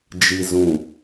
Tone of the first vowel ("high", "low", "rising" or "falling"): low